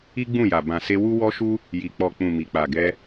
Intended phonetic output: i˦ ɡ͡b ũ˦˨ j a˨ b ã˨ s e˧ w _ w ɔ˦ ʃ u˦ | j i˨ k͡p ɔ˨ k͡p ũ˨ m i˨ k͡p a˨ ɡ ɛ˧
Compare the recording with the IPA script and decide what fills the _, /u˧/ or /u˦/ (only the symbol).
u˦